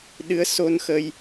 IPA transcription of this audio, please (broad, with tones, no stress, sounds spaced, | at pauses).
ɗ ɨ˧˥ ə̯ s o˧ n x ə˧ j